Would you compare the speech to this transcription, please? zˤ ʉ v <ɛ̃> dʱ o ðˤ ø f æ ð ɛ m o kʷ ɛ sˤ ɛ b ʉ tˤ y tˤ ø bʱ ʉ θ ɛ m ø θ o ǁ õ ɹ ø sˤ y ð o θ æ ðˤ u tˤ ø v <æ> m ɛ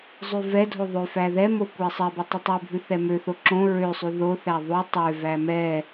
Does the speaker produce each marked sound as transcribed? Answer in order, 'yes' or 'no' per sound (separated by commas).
no, yes